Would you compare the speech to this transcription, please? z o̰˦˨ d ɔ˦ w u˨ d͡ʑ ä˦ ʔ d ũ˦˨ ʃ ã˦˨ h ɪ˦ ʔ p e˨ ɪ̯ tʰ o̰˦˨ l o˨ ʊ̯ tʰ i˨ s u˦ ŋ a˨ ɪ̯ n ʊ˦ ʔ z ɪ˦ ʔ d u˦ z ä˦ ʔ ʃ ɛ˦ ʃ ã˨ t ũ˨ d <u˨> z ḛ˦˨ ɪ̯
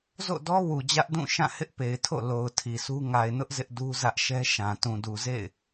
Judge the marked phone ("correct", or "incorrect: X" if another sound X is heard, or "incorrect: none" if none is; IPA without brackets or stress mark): correct